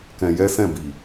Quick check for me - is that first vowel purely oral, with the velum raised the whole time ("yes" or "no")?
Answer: no